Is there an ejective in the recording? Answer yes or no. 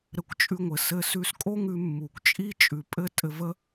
yes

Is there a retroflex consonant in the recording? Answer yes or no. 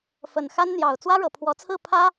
yes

